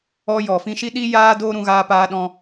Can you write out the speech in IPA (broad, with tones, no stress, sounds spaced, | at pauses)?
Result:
ɔ˧ j ɔ˨ f ĩ˧ ʃ i˦ ɗ i˦ j aː˦ d oː˦ ɾ ũ˧ ɣ aː˧ p aː˧ ɗ ɔ̃˧